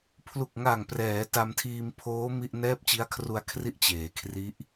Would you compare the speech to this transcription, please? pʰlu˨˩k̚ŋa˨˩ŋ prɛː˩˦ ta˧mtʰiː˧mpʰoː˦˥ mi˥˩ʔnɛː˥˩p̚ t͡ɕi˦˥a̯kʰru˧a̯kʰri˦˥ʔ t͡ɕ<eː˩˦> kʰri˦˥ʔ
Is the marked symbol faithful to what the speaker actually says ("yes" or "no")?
yes